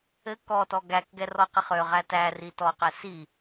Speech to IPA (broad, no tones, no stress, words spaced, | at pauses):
ɘ kɔtɔ ɡækɡɛ rɔqiχøʁæ tæri tɔqɛ si